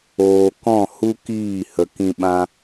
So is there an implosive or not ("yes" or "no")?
yes